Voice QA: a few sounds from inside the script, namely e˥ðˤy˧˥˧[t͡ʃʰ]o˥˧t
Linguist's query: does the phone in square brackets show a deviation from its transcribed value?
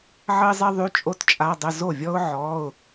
yes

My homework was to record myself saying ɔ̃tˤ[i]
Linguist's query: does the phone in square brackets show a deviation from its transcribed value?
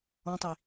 no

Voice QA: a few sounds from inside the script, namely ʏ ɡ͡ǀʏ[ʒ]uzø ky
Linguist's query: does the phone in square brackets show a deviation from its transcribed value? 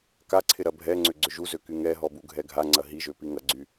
no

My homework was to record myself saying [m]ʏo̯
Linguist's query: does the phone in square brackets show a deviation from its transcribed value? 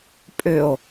yes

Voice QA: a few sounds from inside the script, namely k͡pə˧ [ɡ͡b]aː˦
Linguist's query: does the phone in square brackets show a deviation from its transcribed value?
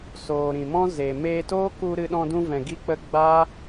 no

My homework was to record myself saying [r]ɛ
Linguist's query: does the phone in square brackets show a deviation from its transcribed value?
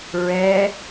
yes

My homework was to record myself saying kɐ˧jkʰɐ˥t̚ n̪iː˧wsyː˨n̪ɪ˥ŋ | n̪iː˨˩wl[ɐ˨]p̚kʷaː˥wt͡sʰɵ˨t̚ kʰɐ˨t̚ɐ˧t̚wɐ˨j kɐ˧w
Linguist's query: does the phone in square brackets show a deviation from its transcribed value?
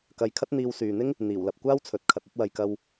no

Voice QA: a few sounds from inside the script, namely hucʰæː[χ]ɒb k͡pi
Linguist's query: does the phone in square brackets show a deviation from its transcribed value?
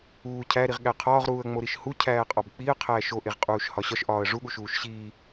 yes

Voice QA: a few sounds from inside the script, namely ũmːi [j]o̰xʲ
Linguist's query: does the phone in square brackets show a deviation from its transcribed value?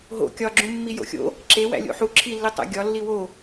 no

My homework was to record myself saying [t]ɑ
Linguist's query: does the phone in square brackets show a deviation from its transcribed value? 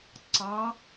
yes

